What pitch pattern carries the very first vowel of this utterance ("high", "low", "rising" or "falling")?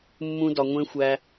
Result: high